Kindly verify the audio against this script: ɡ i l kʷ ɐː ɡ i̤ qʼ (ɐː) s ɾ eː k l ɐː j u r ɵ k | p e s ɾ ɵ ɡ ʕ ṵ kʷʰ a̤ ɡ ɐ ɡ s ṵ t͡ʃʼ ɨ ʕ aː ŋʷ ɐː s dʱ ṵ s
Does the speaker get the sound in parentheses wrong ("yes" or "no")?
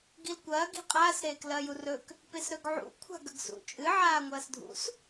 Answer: yes